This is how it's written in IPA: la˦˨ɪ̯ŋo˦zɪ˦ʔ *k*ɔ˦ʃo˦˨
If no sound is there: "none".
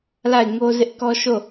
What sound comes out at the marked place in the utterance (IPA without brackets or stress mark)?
k